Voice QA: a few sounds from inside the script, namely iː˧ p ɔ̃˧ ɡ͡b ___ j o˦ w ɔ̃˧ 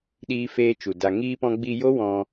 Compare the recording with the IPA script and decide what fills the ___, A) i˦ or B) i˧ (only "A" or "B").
B